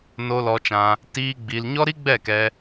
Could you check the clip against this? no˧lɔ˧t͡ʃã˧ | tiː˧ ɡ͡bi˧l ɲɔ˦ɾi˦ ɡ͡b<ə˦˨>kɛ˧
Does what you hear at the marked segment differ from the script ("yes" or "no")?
yes